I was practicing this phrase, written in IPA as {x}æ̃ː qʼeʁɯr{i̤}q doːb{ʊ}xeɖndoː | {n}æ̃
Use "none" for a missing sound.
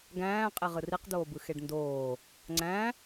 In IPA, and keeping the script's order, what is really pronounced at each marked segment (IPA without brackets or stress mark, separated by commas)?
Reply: ɡ, i, ɯ, ŋ͡ǀ